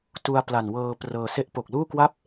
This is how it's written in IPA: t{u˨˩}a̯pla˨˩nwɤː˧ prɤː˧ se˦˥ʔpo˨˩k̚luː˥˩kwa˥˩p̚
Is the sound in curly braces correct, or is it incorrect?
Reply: incorrect